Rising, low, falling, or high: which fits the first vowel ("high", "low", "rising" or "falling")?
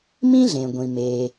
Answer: high